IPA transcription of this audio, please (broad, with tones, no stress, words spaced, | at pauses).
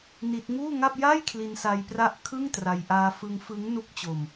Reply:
ni˦˥t̚ ŋuː˥˩ŋa˥˩p̚ ja˥˩jkʰli˧nsa˧jpra˦˥ʔ kʰɯ˥˩ŋtra˧j ʔaː˧fɯ˧ŋ fɯ˦˥ŋ nu˦˥k̚t͡ɕo˧m